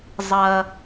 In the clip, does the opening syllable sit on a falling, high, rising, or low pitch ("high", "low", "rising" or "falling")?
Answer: high